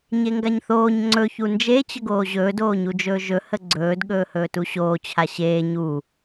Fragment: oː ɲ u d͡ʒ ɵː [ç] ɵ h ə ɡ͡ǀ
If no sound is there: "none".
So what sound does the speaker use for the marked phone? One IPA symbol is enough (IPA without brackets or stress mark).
ʒ